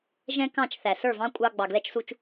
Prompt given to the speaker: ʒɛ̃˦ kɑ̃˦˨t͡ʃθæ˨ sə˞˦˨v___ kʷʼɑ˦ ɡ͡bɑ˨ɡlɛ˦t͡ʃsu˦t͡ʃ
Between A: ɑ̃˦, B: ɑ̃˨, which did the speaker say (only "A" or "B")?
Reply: A